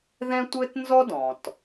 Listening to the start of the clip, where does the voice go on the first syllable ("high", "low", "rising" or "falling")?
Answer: high